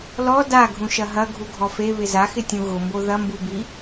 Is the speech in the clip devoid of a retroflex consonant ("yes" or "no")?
yes